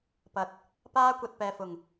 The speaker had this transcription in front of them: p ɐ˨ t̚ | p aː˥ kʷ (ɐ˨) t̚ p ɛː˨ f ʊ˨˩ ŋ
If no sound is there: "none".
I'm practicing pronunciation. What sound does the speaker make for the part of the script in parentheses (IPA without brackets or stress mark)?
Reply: ɐ˨